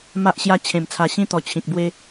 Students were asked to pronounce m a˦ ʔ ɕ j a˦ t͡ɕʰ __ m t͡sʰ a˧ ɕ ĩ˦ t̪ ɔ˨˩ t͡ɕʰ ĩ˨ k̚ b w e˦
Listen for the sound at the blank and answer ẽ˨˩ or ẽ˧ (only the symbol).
ẽ˨˩